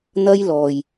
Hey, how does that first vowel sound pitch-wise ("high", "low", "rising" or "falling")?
high